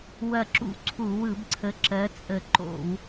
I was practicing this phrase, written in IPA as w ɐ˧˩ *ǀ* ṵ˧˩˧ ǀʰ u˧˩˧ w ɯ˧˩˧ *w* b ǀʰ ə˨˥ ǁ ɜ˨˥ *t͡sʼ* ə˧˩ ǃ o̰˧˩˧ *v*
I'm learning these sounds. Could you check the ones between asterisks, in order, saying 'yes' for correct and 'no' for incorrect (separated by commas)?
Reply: no, no, yes, no